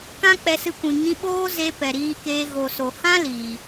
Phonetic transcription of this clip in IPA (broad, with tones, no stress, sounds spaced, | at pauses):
k ã˦ k͡p ɛ˧ s ɨ˧ kʷ ĩ˨ ŋ ĩ˧ ɓ oː˦ z e˧ p ɛ˨ ɾ iː˧ k eː˧ ɣ o˨ s o˨ h ã˦ l iː˨